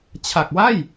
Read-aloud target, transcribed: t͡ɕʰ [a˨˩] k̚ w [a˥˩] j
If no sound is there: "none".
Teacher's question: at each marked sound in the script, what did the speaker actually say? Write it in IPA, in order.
a˨˩, a˥˩

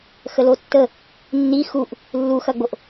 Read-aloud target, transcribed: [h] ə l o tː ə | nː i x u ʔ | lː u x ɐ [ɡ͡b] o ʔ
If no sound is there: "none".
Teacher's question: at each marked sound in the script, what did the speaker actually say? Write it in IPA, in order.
x, ɡ͡b

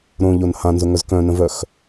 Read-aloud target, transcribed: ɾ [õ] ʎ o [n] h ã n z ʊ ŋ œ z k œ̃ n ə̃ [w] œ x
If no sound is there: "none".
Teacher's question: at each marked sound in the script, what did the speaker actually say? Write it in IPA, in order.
õ, n, v

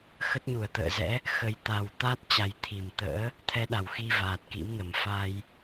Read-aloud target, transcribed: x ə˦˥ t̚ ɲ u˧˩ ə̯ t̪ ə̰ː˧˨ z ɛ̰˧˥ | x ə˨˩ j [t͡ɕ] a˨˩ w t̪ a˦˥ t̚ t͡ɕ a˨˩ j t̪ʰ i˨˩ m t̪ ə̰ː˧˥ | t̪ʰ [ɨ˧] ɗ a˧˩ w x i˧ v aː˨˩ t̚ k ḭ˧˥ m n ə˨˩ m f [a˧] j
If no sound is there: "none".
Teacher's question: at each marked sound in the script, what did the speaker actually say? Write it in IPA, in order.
t̪, ɛ˧, a˧

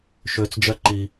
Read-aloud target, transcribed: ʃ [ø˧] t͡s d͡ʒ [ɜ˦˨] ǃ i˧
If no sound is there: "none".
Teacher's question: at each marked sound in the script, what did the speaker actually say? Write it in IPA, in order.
ø˧, ɜ˦

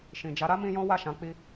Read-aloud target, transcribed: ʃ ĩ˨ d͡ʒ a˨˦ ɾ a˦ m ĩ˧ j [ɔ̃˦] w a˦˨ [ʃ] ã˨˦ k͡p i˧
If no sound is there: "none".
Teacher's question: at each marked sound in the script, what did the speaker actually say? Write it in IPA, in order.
ɔ̃˦, ʃ

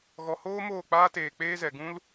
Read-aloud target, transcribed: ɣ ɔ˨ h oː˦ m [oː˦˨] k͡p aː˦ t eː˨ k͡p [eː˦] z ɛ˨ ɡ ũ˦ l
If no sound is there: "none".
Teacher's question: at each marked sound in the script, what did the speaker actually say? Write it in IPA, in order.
oː˦˨, eː˦

